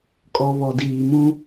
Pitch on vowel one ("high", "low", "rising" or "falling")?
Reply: low